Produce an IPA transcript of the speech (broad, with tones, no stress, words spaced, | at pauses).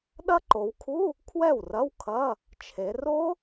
ɗɐ˦˥ǃo˩˧wkʰu˧˥˧ | kʰwɛ˥˩wrɐ˧˥˧wkʰɐ˧˥˧ | t͡ʃʰe˩˧ ro˦˥